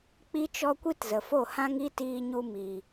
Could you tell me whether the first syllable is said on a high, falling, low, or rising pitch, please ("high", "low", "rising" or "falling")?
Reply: high